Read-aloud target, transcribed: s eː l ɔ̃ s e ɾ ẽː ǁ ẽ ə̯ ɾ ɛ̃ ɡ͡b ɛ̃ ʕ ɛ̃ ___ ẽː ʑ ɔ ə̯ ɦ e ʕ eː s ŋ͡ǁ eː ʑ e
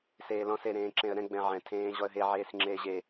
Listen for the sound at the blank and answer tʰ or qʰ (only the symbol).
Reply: tʰ